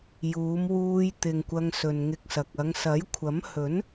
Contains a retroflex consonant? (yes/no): no